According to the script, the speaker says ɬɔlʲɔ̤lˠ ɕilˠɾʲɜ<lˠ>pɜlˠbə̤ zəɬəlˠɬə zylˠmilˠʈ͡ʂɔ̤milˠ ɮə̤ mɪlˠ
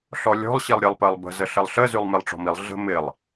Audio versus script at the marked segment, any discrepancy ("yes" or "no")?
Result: no